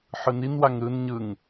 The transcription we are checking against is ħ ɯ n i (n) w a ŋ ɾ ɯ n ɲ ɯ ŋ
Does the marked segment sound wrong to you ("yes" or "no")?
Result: no